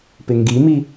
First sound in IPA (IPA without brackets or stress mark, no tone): p